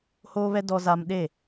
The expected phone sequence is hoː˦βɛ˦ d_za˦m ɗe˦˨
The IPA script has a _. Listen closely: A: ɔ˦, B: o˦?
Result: A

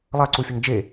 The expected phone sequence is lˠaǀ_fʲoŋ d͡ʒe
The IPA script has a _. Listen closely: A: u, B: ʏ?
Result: A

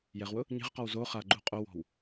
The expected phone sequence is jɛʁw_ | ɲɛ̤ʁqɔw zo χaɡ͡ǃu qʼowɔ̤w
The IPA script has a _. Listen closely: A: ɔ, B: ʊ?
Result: B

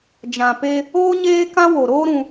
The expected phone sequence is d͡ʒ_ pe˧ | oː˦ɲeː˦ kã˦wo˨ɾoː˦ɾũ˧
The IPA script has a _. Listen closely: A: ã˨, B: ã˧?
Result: A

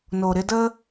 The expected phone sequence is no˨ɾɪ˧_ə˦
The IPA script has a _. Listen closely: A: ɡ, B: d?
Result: B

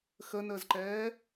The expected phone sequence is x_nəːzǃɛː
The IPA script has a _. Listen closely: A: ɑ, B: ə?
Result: B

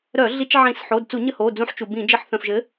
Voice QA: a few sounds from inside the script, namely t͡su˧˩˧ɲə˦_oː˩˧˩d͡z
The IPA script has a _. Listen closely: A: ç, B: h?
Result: B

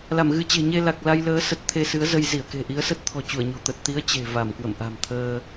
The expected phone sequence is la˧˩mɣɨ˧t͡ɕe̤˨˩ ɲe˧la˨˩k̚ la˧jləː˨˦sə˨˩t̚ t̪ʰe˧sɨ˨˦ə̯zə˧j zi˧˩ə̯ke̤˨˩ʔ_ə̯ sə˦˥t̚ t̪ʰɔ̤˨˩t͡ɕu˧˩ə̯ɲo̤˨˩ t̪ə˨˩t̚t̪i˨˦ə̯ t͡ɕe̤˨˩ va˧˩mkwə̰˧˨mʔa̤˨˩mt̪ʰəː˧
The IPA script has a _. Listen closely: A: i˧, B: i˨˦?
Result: B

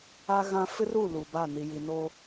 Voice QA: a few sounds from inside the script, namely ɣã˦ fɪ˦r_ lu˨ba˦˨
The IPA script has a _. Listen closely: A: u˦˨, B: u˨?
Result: A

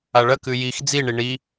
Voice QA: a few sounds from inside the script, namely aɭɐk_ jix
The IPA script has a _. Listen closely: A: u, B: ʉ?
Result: B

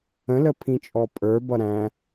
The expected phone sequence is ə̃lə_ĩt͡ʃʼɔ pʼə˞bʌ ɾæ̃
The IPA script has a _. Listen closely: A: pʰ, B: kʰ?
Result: A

